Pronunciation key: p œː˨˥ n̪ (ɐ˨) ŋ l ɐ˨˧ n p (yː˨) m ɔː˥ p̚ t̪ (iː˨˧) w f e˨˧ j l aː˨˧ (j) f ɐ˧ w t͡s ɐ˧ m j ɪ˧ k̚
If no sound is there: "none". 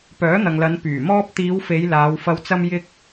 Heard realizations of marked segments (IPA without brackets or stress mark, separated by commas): ɐ˨, yː˨˩, iː˨˧, w